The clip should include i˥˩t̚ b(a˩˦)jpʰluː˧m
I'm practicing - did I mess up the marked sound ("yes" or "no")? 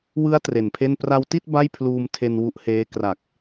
yes